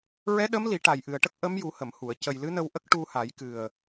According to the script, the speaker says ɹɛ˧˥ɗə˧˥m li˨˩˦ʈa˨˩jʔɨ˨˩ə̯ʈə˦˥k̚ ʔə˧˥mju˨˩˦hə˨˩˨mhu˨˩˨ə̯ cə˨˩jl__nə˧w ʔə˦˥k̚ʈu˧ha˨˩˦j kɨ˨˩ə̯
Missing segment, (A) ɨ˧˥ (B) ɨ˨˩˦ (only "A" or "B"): A